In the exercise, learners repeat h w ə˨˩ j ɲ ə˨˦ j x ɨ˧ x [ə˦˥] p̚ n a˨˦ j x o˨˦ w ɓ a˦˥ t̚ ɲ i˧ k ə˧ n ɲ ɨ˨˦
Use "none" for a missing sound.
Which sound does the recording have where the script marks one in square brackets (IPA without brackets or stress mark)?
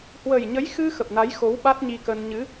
ə˨˩